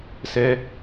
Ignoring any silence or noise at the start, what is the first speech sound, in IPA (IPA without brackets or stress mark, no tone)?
s